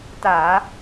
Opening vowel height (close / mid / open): open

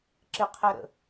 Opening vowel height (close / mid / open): close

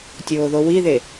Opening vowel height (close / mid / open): mid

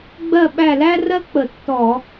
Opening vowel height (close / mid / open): mid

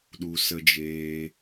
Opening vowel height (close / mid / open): close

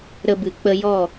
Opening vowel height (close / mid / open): mid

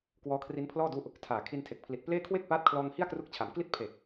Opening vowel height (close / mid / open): mid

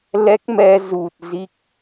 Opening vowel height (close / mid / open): mid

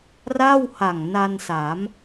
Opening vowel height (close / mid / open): open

